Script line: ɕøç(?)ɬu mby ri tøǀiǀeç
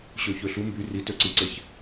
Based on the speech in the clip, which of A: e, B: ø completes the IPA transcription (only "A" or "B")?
B